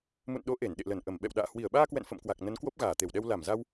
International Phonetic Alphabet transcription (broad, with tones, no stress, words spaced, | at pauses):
mṵ˧˨nɗo˨˦ ʔe˧˩nɗḛ˧˨lə˧˩nʔə˧˩m ɓɛ̰˧˨wɗa̰ː˧˨ hwi˧˩ə̯ɓaː˧kwɛ̰˧˨n fə̰˧˨mkwa˨˩k̚ nə˨˦n kwo˦˥p̚ɣaː˧˩t̪e˧˩wɗɛ˧w la˧˩mza˧w